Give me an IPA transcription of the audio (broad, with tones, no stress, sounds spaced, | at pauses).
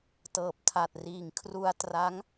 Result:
t ɤː˨˩ p̚ tʰ a˨˩ t̚ r iː˨˩ ŋ kʰ r u˧ a̯ t r a˦˥ ŋ